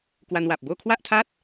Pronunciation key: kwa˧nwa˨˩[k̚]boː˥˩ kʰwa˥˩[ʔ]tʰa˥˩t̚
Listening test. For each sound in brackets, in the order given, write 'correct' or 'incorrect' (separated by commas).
incorrect, correct